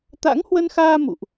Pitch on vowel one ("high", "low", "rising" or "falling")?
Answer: rising